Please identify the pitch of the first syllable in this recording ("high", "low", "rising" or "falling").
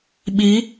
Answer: rising